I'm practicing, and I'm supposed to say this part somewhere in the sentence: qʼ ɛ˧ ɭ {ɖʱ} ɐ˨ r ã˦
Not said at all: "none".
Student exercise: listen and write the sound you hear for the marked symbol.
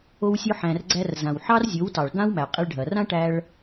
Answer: ɖʱ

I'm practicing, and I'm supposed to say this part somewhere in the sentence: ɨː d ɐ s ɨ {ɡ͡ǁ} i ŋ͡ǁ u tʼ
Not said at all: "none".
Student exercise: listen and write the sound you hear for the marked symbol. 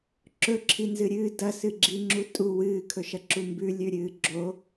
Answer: ɡ͡ǁ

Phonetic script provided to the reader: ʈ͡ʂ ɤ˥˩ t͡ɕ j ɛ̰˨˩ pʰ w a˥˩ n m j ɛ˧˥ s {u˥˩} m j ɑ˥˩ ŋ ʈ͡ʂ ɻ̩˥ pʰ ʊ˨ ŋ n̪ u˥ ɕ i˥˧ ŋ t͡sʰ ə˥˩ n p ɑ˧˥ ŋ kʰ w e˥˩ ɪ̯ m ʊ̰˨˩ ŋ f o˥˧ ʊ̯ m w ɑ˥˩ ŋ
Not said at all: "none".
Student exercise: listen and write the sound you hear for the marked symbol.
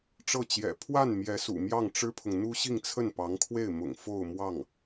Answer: ṵ˨˩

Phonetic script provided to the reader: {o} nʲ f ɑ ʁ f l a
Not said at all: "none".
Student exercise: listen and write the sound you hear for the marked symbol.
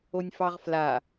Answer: o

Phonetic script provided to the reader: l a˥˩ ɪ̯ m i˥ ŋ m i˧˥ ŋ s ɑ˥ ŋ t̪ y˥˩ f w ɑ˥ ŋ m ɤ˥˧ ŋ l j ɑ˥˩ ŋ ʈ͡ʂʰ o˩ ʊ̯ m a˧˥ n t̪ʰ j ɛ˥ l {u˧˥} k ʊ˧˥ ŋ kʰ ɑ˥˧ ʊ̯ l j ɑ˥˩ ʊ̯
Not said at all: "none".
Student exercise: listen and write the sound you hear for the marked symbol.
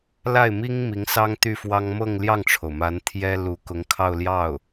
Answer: u˧˥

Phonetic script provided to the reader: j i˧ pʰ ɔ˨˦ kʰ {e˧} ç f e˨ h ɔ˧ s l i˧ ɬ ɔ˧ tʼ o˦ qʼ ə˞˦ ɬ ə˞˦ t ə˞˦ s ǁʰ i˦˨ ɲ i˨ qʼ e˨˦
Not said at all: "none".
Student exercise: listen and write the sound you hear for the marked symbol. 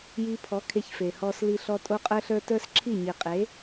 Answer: e˧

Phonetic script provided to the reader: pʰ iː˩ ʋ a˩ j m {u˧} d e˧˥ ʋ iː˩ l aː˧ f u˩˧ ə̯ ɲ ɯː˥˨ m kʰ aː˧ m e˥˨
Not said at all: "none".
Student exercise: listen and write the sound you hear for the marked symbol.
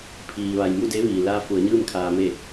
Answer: u˥˨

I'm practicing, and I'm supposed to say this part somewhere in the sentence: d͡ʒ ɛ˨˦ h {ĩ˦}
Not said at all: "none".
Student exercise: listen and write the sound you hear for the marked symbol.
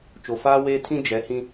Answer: ĩ˦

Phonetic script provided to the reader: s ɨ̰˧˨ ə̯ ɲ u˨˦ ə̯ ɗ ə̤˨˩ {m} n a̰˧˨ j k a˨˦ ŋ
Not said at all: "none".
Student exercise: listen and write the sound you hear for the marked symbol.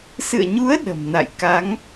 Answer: m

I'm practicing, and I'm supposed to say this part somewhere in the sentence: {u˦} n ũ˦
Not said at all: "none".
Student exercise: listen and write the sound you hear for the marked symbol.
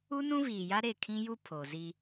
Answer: u˦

